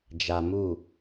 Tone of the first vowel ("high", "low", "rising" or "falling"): low